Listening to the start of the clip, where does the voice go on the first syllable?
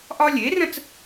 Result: high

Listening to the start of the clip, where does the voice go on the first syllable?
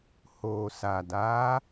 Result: low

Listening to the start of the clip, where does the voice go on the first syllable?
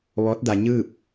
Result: rising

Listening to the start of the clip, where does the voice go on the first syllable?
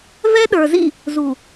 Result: high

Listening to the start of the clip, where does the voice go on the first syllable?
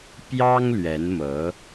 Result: high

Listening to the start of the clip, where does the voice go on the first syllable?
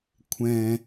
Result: low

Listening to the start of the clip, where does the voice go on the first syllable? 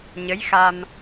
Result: rising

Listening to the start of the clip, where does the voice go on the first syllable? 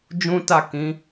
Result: high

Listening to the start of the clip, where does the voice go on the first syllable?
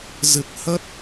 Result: low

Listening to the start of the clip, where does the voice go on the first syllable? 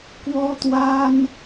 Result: high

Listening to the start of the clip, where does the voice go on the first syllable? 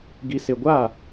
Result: low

